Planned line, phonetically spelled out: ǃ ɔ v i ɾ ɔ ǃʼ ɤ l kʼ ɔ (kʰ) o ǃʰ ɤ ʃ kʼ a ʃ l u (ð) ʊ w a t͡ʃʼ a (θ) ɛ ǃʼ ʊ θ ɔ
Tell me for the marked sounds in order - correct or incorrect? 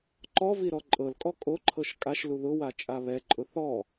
incorrect: kʼ, correct, incorrect: β

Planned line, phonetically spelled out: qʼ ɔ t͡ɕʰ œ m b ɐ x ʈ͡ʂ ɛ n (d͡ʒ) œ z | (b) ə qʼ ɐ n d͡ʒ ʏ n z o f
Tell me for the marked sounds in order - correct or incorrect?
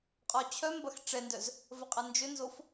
incorrect: d, incorrect: v

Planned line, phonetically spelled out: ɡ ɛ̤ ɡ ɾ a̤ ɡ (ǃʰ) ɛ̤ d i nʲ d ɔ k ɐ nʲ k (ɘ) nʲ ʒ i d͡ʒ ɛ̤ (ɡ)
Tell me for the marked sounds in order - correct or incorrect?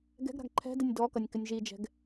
correct, correct, correct

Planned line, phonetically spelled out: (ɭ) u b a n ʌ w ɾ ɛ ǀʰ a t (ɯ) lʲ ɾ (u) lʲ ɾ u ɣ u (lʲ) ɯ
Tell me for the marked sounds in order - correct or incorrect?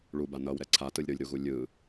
correct, correct, incorrect: ɯ, correct

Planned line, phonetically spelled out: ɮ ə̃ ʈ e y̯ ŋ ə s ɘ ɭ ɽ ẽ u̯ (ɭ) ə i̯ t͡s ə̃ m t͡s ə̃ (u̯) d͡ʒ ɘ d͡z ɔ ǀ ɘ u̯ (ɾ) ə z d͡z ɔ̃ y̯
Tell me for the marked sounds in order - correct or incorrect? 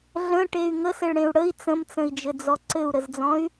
incorrect: ɽ, incorrect: i̯, correct

